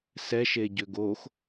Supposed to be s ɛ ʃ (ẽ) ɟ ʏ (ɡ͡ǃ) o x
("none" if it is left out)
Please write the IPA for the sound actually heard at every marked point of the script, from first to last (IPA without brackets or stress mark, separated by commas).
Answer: e, ɡ